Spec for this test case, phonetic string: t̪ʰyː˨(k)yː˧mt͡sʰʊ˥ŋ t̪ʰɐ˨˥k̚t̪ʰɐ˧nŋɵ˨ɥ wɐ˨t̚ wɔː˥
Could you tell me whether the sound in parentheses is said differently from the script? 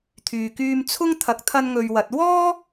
no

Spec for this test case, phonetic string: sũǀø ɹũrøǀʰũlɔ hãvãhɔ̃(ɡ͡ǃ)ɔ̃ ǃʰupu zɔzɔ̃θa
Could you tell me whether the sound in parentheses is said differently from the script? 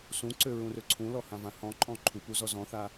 yes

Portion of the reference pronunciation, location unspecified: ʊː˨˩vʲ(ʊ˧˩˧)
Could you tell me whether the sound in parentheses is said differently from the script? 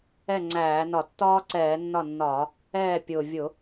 no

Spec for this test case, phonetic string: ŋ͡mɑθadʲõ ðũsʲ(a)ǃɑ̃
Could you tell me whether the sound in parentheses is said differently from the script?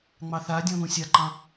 no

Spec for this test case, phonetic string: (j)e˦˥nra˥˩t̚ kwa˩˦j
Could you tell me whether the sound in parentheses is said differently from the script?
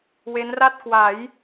yes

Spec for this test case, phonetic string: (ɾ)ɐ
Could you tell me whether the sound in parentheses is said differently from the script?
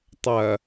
yes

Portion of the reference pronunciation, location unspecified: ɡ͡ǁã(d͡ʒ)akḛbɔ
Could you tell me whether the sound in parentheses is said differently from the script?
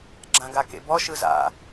yes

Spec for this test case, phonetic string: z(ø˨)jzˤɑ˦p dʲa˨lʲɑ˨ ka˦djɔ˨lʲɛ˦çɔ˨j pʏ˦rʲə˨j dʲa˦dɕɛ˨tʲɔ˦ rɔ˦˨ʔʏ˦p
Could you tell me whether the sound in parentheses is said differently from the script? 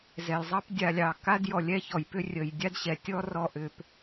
yes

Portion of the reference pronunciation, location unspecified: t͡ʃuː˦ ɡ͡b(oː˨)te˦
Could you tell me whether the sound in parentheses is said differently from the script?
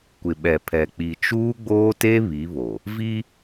yes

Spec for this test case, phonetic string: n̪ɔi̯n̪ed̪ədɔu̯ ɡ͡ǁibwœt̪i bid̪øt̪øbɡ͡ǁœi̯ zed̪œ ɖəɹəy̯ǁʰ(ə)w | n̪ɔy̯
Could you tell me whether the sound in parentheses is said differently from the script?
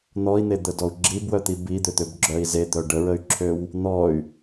yes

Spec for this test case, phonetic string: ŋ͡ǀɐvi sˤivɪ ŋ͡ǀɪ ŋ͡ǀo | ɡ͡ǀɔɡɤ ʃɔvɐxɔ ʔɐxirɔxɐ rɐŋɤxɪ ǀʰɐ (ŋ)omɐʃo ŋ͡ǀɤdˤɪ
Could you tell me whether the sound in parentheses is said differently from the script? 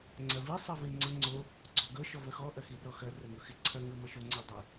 no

